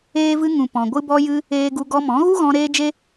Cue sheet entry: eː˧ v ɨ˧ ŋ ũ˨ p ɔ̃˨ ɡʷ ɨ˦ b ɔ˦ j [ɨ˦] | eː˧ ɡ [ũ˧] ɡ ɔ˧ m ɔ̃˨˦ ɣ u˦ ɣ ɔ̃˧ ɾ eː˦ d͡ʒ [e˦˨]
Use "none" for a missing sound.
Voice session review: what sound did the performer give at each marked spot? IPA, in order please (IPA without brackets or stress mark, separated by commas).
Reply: ɨ˦, u˧, e˦